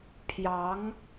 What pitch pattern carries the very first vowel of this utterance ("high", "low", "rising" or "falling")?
rising